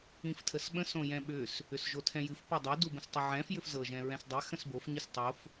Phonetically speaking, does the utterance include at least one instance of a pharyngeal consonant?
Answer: yes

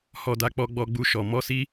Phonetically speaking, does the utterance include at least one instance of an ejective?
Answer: no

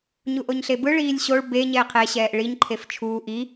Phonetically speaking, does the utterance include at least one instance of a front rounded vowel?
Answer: no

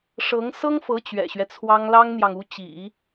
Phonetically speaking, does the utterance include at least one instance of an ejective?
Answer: no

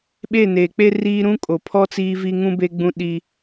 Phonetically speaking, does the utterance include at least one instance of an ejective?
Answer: yes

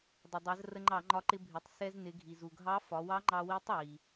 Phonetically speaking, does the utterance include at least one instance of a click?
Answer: yes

